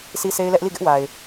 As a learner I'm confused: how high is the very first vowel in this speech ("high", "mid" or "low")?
high